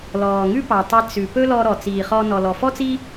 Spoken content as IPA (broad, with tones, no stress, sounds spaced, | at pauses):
l ɔː˨ ŋ ʉ˦ p ɑ˨ tˤ e˧ t͡s ʉ˨ p ɵ˦ l ɔ˧ ɾ ɔ˨ t͡s iː˨ χ ɔ˧ n ɔ˨ l ɔ˨ f ɔ˦ t͡s i˦